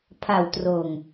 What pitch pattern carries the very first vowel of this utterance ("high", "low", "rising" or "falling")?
low